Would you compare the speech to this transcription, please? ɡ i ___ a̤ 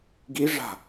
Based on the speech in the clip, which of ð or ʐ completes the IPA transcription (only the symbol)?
ʐ